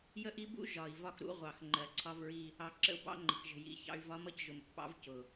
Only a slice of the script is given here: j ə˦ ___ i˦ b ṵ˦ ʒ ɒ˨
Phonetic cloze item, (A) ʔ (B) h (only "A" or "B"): A